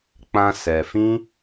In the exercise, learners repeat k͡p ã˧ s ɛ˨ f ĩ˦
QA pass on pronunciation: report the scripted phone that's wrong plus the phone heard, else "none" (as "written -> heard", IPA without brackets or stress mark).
none